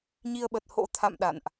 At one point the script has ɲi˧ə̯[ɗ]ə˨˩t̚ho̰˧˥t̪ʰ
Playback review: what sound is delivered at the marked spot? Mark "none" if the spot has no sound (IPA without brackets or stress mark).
ɓ